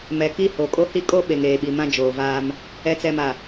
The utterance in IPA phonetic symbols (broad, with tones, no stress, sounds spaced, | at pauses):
m ɛ˨ k i˦ h o˨ kʼ o˦ h i˦ kʼ o˦ ɓ e˨ ŋ eː˨ ɓ i˨ m ã˦ d͡ʒ oː˨ v aː˦ m | ɛ˨ t͡s ɛ˨ m a˨